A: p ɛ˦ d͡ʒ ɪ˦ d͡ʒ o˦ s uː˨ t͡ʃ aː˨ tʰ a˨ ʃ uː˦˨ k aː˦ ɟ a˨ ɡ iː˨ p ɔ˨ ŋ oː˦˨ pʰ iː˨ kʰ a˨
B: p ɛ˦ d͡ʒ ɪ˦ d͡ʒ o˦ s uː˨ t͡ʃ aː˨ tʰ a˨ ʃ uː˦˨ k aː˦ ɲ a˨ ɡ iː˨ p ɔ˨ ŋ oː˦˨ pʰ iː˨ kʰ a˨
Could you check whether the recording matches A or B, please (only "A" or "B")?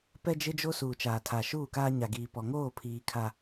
B